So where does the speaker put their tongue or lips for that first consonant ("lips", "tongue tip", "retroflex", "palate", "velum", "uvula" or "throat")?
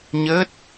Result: palate